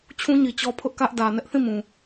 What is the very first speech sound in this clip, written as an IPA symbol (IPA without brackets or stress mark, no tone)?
t͡ɕʰ